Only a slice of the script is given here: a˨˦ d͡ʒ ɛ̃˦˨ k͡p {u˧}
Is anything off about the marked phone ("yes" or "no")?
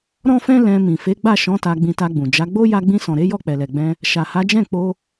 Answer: yes